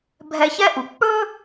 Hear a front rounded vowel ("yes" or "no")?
no